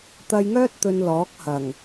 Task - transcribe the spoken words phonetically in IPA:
t̪ ɐ˧ j ŋ œː˥ t̚ t̪ ɵ˧ n l ɔː˨˥ k̚ h ɐ˨˩ ŋ

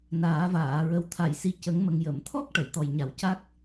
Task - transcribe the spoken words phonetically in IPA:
n aː˨˩˦ v aː˨˩˨ ɹ ə˨˩ w t̪ʰ a˨˩˨ j s i˨˩ c ə˨˩˦ ŋ m ə˨˩ ŋ j ə˨˩˨ m t̪ʰ ɔ˦˥ k̚ ʈ ə˨˩˨ j t̪ ɔ˨˩ j ɲ a˨˩ w c a˦˥ k̚

